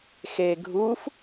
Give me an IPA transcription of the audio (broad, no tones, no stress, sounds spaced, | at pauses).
x e ɡʱ u f